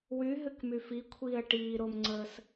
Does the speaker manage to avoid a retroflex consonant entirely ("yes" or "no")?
no